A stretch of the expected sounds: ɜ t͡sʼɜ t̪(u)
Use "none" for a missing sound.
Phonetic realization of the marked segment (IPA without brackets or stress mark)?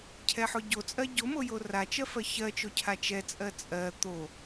o